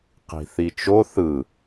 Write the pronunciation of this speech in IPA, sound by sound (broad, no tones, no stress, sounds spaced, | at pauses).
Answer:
q i̤ θ i t͡ʃ o θ ɯ